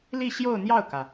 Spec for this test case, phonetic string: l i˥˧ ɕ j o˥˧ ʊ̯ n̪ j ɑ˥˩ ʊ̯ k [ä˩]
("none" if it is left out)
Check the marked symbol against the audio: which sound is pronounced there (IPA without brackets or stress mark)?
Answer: ä˩